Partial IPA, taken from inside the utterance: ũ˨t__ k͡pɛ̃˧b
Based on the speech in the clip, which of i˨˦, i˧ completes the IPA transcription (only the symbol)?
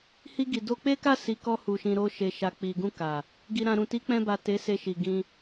i˨˦